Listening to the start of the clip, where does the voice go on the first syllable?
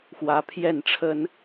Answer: rising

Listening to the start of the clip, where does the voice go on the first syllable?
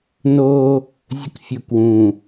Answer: high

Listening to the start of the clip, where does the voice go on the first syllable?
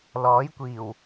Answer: rising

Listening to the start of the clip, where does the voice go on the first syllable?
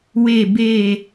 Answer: falling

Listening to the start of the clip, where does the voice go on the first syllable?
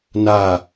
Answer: falling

